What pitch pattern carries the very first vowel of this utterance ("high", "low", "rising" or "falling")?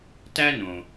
high